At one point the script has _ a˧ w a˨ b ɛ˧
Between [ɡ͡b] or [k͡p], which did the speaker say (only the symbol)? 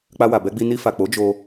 k͡p